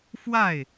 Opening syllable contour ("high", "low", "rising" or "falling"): falling